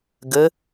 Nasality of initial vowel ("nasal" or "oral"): oral